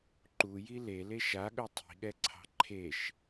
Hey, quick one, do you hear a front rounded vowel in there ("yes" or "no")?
no